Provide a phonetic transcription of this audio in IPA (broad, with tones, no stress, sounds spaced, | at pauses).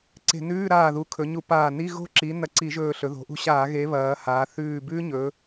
ǀ e̤˧˩˧ n ʉː˧˥˧ ɾ aː˧˩ ð u˩˥ kʰ ɵ˩˧ ɲ u˧˩˧ p aː˧˩ n i˧˥˧ ɣ o̤˦˥ ǁ i˩˥ n ɐ˧˩ ǀ i˧˩˧ ʒ ɵː˧˩ ɬ ɵ˩˧ ð o̤˩˧ ʔ ṳ˧˥˧ ɕ aː˧˩˧ ɣ e˩˥ β ɐː˩˧ h aː˩˧ θ ʉː˧˩ b ʉː˦˥ ɲ ɵ˩˧